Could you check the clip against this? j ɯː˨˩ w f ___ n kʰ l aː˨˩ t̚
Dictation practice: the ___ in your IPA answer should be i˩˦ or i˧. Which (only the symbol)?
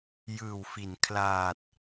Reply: i˩˦